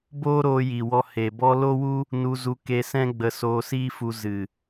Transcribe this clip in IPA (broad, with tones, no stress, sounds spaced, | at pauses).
b oː˦ ɾ oː˧ j i˨ w ɔ˧ h e˨ b ɔ˦ l o˦ w u˦ | n u˧ z u˧ k e˧ s ɛ̃˦ ɡ͡b ə˧ s oː˧ s iː˦ f u˧ z ɨ˨